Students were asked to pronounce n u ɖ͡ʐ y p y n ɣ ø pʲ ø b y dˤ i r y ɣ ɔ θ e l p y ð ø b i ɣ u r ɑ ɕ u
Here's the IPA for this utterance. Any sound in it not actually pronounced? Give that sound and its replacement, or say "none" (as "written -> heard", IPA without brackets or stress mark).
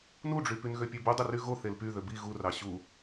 ɔ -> o